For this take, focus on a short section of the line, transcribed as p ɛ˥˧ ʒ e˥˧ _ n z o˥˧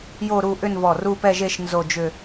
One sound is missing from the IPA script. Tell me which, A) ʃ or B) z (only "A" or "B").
A